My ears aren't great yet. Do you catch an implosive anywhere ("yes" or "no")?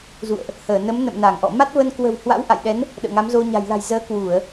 yes